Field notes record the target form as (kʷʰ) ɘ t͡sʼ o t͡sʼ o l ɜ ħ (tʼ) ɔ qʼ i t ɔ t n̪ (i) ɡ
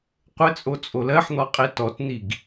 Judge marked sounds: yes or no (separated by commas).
no, no, yes